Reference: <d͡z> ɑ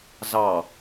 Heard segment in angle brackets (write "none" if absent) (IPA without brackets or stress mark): z